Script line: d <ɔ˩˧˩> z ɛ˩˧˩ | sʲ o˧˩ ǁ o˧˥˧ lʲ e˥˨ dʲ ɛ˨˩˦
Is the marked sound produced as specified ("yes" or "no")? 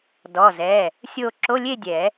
yes